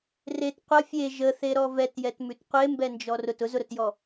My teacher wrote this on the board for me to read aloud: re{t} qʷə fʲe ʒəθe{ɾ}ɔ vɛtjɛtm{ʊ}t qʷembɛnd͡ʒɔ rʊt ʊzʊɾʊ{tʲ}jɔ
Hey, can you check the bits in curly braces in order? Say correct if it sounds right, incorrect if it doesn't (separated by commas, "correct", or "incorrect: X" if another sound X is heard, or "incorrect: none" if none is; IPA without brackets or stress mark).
correct, correct, incorrect: ʉ, incorrect: t